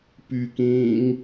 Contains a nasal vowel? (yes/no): yes